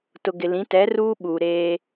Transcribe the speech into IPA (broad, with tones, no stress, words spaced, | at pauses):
tʊ˨ ɡɪ˨lĩ˨˦ tɛ˨˦ruː˦ ɓuː˨ɾeː˦